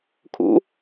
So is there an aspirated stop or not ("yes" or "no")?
yes